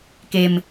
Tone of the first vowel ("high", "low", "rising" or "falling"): low